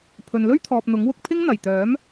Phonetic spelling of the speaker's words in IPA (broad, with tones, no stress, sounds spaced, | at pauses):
pʰ ɵ˨ n l ɵ˥ ɥ t̪ʰ ɔː˨ p̚ n̪ ʊ˨˥ ŋ w ʊ˧ k̚ pʰ ɪ˥ ŋ n̪ ɐ˨˩ j t̪ œː˨˥ m